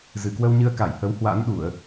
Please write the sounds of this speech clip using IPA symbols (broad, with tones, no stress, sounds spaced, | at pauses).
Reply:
z ɨ˨˩ k w ə˧ w ɲ ɨ˧ ə̯ k a˧˩ j h ə˨˦ w h w a̰˧˥ n ɗ u˧˩˨ ə̯